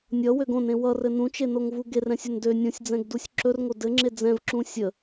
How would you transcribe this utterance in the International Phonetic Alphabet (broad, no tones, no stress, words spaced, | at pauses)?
nʲʌwøɡ õnẽ wʌrɘ nũt͡ʃenoŋvu ɡerɛ̃sʲɵn dø nʲõsʲd͡zɛ̃ɡdusʲ ǁɵrŋo dɘŋ͡ǁe d͡zɛ̃vǁũ sʲə